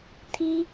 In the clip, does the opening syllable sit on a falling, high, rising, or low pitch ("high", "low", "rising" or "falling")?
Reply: high